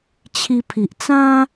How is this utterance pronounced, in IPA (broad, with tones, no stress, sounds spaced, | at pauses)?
t͡ɕʰ i˧ pʰ i˨ ʔ t͡s ã˦